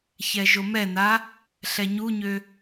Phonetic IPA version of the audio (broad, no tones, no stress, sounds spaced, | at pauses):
ç ɛ ʒ o m ɛ n a | ɬ ɛ ɲ u ɲ ø